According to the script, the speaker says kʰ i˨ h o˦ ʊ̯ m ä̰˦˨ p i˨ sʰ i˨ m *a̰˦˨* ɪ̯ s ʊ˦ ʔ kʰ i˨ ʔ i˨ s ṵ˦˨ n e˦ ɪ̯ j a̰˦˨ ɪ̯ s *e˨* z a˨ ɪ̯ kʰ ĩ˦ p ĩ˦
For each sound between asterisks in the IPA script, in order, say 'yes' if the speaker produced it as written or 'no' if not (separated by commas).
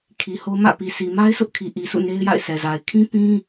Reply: no, no